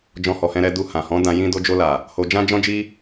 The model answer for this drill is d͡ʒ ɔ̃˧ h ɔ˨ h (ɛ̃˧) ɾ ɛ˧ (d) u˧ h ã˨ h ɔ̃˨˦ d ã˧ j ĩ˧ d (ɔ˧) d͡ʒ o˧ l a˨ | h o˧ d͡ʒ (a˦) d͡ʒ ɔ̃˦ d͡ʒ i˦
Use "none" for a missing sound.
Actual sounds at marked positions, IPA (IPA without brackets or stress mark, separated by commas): ɛ̃˧, d, o˧, ã˦